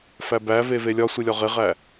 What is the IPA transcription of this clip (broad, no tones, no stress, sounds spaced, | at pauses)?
f æ b æ v e v e lʲ ɒ sʷ i lʲ ɒ ʁ e ʁ æ